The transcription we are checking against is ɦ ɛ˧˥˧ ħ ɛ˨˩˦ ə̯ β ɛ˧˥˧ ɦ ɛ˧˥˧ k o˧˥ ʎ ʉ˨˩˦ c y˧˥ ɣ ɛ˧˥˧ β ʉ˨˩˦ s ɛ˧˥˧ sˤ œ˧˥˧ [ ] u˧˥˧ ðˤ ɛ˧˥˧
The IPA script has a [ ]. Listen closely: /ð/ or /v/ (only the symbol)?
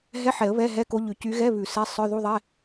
ð